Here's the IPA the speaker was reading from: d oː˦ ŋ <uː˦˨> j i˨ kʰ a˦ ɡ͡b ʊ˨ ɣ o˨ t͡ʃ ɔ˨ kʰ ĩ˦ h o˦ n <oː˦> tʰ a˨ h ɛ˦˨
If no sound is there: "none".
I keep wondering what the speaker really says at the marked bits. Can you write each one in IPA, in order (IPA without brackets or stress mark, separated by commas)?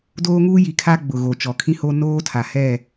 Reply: uː˦, oː˦